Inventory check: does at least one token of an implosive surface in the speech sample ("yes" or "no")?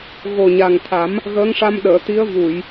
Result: yes